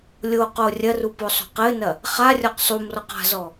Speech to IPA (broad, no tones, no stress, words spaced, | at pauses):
lʲo qorʲɐru posˤo̤qɘnɐ | χarʲɔq sˤumrɔq a̤zɔ